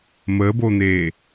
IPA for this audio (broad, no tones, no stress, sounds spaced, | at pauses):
m ə b o n̪ e